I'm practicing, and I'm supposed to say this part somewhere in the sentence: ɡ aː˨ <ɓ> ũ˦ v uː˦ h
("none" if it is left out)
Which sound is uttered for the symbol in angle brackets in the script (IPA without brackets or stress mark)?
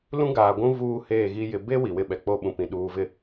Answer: ɡʷ